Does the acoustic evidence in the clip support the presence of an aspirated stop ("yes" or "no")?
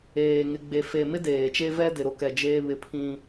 yes